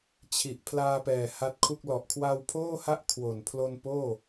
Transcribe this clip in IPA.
t͡ɕʰ i˨˩ ʔ pʰ l aː˧ p ɛː˨˩ h a˦˥ t̚ kʰ u˥˩ k̚ l ɔ˨˩ ʔ kʰ w a˧ w pʰ oː˥˩ h a˦˥ ʔ kʰ w o˨˩ n pʰ l o˧ n p oː˥˩

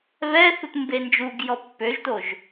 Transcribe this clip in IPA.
β ɛ θ u t m b e n d͡ʒ u ɡ j ɔ pː ø ʒ t o ʒ

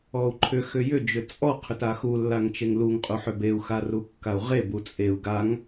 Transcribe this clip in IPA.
ɔ u̯ ǃʰ ʏ x ʏ j ʏ d͡ʒ ʏ t͡sʼ ɔ qʰ ʏ t a x u lː a ŋ t͡ʃ e ŋ l u ŋ qʼ u ħ ʏ b e u̯ x a r u kː a u̯ ʁ e b u t͡sʼ e u̯ ɡ a ŋ

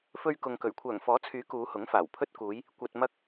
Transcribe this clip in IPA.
f ɵ˧ ɥ k ʊ˨ ŋ k ɵ˨˩ ɥ kʷʰ œː˨˩ ŋ f ɔː˨˥ t͡sʰ yː˨˥ k uː˨˧ h ʊ˨˥ ŋ f aː˨˩ w pʰ ɵ˧ t̚ k uː˨˧ j | kʷ ɐ˨ t̚ m ɐ˧ k̚

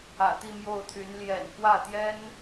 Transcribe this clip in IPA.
ä̰˨˩ t̪ i˥˧ m j o˥˩ ʊ̯ t̪ʰ y˧˥ n l j ɛ̰˨˩ n k w ä˥˩ t̪ j ɛ˥ n

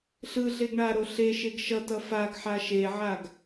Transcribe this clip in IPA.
ɬ ɯ ɮ e ɡ ɳ a ɾ o ɬ e ʃ e ɡ ʃ ʌ t ʌ f a ɡ ħ a ʃ e ʕ a ɡ

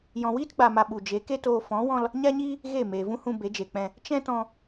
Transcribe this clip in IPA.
j ɔ̃˨ w iː˦ t ɡ͡b a˨ m a˨ ɓ u˨ d͡ʒ e˨˦ k e˦ t oː˧ f ɔ̃˨˦ w ɔ̃˧ l | ɲ a˦ ɲ iː˦ | ɣ e˦˨ m eː˨ v ũ˦ h ũ˧ b e˨˦ d͡ʒ e˨ k͡p ɛ̃˧ | t͡ʃ ɛ̃˦ t ɔ̃˧

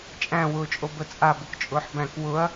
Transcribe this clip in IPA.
t͡ʃʼ æ̃ w ʊː t͡ʃʼ o b ə t͡sʼ a b ʊ k t͡ʃʼ ʊː ħ b æ̃ k w ʊ ɐ̯

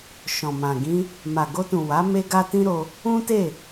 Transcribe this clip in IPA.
ʃ ɔ̃˨ m ã˨ ɡ ĩ˧ | m a˨ ɡ o˧ t ũ˨ w a˨˦ m e˦ ɡ a˦ t ĩ˦ ɾ o˧ | ũ˦ t e˦˨

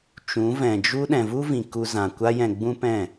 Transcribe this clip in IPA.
t͡ʃ ũ˨˦ v ɛ̃˨ d͡ʒ u˦ ɗ ɛ̃˨ v u˦ v ĩ˨ k u˧ z ã˨ kʷ a˦ j ɛ̃˧ ɡ͡b ũ˦ p ɛ̃˦˨

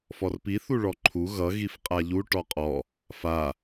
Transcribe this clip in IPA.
f ɔ r p i θ u ɭ ɔ ǃʰ u ɣ ʌ ɣ i f qʼ a ʎ u ʈ ɔ qʼ ɔ | f a

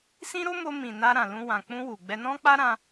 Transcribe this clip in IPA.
s ĩ˦ ɾ o˦ m o˧ m ĩ˨ n a˧ ɾ ã˨ l ũ˧ w ã˨ k͡p ũ˧ w u˨ ɡ͡b ɛ˧ n ɔ̃˦ k͡p a˦ ɾ ã˧

